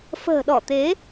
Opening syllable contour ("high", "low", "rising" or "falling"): low